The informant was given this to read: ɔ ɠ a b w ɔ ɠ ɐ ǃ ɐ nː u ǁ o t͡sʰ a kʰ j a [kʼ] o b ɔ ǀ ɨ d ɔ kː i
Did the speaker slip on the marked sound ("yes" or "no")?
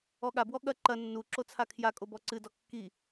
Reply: no